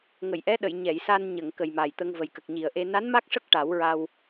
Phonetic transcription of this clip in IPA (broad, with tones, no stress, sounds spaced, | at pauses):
ŋ ə˨˩˨ j ʔ ɛ˧˥ ɗ ə˨˩˨ j ɲ ɛ˨˩˨ j s a˧ n ɲ ə˨˩˨ ŋ k ə˨˩ j m a˨˩ j t̪ ə˧ ŋ v ə˨˩ j k ə˨˩ k̚ ɲ i˨˩ ə̯ ʔ e˧ n a˧˥ n m a˦˥ k̚ ʂ ə˦˥ k̚ ʈ a˨˩˦ w ɹ a˧ w